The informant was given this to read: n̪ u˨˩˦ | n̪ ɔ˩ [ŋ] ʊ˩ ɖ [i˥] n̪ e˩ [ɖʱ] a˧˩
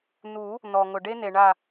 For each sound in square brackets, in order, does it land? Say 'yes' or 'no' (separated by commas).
yes, no, no